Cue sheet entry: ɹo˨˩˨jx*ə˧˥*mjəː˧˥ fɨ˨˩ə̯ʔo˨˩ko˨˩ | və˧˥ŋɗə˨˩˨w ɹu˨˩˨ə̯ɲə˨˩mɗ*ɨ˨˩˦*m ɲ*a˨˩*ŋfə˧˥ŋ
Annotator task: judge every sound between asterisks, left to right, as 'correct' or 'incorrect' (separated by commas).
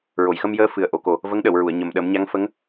incorrect, incorrect, incorrect